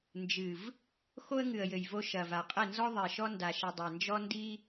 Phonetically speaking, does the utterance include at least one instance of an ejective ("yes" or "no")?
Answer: yes